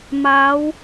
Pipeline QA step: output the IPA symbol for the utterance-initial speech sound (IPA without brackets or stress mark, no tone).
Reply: m